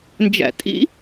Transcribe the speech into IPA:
nd͡ʒæ̰tʼḭ

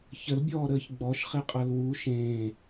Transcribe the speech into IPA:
çəlbʲɔːɾəːç ɡ͡bɔʃχeqʼʌl wu ʃẽː

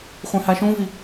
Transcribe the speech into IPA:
χʷẽhaʃũvi

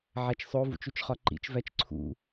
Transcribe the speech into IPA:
ʕæt͡ʃsˤo vṵt͡ʃut͡ʃχɒǃḭt͡ʃ væt͡ʃǀʰṵ

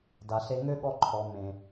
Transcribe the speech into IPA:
da˨ɬe˧ŋø˦ ɠɔ˦ǃʰɔ˨ mẽ˨

